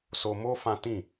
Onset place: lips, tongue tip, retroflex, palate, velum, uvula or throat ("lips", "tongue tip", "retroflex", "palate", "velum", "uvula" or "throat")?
tongue tip